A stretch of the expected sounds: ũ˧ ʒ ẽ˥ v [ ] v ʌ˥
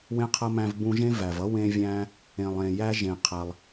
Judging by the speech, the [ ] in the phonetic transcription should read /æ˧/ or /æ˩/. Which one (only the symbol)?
æ˩